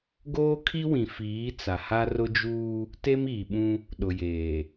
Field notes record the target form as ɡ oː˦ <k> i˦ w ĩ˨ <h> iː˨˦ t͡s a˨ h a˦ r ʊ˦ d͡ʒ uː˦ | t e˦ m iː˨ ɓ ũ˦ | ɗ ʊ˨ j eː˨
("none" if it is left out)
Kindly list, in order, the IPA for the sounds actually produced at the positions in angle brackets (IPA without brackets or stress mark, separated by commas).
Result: kʰ, f